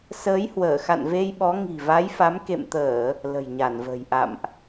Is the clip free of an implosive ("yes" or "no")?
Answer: no